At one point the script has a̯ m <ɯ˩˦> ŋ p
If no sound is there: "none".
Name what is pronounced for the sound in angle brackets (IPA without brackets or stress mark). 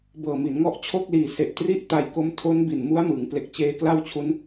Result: ɯ˩˦